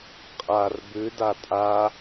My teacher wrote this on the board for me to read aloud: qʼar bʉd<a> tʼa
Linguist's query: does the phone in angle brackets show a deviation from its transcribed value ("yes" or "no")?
no